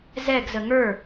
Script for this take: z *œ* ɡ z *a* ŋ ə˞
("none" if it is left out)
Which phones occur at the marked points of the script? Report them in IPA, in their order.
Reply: ɛ, ə

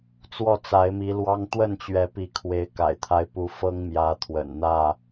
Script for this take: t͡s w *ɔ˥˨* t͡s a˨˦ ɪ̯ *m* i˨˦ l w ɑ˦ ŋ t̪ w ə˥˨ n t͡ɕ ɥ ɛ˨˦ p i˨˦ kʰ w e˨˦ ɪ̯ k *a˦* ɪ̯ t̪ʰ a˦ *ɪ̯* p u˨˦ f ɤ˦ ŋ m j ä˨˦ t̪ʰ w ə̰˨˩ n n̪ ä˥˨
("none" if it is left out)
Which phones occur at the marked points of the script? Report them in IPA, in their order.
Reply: ɔ˥˨, m, a̰˨˩, ɪ̯

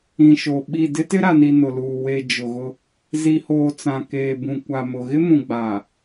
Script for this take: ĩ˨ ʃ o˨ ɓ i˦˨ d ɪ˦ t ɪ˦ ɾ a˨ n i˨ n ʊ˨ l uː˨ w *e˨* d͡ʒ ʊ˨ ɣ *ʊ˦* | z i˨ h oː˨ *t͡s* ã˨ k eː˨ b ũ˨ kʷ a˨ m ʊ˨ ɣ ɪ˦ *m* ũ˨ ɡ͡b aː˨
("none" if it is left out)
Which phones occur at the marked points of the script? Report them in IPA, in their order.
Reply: e˨, ʊ˦, t͡s, m

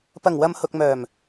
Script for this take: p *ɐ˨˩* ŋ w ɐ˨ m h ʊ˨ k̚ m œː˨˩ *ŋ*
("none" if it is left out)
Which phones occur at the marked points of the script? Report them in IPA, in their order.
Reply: ɐ˨˩, m

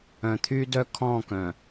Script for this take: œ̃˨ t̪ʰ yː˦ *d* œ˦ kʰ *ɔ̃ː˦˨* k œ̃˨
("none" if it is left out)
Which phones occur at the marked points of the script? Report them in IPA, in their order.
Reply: d, ɔ̃ː˦˨

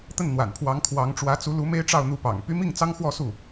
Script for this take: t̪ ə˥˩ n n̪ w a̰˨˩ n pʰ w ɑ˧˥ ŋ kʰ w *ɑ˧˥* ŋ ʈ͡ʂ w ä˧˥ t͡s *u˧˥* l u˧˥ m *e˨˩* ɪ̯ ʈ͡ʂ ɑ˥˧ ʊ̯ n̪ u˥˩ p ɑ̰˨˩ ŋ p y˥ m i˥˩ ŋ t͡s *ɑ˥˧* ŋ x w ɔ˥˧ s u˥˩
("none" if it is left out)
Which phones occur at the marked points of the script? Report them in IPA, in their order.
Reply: ɑ˧˥, u˧˥, e˥, ɑ˥

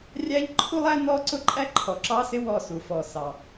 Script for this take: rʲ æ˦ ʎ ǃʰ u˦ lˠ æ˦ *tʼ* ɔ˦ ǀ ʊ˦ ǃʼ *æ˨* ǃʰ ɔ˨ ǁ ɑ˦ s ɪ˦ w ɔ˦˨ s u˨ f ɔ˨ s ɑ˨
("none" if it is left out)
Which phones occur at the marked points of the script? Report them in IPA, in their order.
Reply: n, æ˦

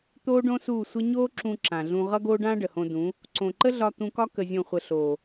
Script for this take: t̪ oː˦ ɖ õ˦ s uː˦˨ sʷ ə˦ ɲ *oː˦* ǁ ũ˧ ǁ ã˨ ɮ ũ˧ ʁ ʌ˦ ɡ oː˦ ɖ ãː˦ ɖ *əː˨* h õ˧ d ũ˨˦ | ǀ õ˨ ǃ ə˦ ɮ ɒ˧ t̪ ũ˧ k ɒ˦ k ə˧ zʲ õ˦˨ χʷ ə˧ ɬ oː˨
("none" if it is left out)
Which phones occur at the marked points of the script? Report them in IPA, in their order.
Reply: oː˦, ə˨

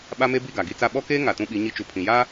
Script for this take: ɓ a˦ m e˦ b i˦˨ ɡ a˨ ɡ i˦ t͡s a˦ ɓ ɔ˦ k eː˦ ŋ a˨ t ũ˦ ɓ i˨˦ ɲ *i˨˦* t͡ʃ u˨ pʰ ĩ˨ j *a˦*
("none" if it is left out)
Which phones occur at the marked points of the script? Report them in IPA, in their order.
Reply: i˦, a˦

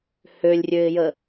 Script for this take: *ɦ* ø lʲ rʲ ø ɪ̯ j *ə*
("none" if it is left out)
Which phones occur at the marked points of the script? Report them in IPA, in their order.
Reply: h, ə

